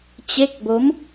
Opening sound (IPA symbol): t͡ɕ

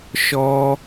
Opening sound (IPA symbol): ʃ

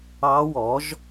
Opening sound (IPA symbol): ɑ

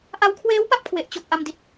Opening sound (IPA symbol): ʔ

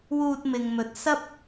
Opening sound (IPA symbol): w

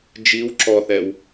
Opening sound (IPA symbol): d͡ʒ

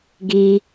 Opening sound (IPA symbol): ɡ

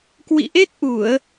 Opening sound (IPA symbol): k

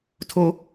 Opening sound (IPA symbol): tʰ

